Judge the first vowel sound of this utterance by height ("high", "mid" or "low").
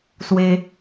mid